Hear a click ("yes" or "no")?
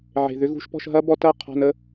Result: no